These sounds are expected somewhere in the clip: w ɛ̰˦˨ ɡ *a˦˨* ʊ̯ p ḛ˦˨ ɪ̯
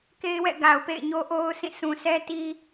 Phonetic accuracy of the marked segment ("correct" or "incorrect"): incorrect